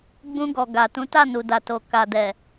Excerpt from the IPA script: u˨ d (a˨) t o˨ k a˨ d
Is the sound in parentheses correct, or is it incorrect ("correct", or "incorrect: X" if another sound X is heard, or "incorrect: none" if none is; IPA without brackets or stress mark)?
correct